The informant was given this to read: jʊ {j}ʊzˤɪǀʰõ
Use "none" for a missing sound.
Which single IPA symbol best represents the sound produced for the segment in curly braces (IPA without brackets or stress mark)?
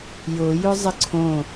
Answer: j